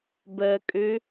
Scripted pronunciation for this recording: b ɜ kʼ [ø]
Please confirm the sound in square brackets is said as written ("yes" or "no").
yes